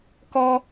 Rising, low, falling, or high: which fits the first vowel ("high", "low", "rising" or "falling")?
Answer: high